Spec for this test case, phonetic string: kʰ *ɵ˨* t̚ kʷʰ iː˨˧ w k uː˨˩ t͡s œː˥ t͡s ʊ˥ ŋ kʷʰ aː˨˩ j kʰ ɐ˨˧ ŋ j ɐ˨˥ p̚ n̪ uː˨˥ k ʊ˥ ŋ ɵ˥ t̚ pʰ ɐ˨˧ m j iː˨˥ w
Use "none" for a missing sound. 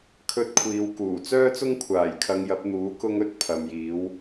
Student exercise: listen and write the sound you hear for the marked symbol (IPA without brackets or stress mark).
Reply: ɵ˧